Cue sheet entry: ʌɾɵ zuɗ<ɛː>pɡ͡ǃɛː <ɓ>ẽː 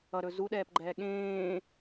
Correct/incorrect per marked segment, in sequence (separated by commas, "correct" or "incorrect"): correct, incorrect